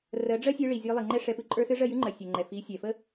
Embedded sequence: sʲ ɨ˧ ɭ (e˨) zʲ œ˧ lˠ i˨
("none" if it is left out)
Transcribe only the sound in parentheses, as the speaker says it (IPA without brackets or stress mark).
i˨